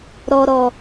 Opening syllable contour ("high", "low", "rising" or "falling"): low